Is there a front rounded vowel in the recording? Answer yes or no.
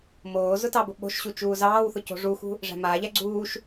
no